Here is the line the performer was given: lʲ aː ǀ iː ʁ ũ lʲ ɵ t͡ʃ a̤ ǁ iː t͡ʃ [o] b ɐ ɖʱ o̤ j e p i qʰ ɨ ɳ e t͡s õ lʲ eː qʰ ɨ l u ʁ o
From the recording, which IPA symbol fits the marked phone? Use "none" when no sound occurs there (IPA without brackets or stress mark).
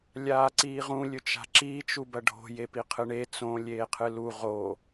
u